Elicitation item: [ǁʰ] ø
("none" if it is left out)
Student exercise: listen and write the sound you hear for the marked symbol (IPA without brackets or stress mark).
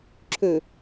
ǁʰ